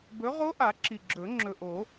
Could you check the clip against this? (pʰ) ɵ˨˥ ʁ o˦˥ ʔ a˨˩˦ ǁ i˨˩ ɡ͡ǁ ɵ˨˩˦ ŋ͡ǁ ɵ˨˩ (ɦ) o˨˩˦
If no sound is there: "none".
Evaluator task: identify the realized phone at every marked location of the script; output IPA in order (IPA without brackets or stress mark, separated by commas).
b, ʔ